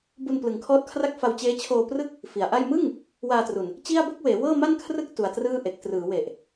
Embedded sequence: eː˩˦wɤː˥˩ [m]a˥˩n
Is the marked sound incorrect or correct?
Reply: correct